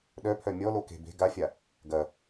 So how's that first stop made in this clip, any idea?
implosive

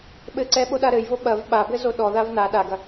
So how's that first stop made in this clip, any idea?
implosive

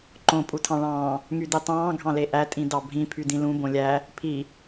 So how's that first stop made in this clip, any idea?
click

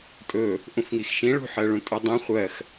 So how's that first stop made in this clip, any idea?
ejective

